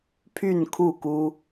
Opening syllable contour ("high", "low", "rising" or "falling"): falling